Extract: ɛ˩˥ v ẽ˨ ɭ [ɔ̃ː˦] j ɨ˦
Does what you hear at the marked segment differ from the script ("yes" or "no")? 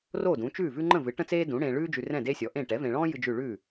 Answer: no